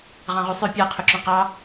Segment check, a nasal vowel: present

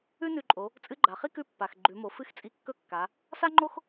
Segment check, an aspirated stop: absent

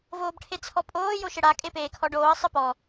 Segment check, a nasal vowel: absent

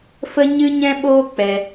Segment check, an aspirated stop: absent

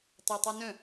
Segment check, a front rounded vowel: present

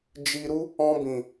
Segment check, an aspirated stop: absent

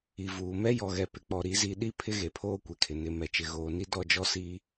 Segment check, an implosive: present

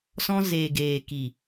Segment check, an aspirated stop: absent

